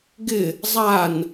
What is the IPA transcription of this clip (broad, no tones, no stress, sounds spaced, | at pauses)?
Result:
ɡ ɪ | zˤ a n